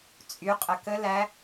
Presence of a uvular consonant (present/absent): present